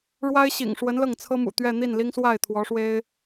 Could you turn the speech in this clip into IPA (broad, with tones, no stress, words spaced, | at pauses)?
ɻwa˥ɪ̯ɕḭ˨˩ŋʂwə˧˥n lɤ˥˩ŋt͡sʰɤ˥mṵ˨˩ t̪ɥɛ˥˧n̪i˥˩nli˥ŋswa˥˩ɪ̯ t̪ʰwɔ˧˥ʂwe˥ɪ̯